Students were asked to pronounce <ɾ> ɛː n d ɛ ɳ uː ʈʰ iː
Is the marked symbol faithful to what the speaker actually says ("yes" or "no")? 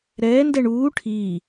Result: yes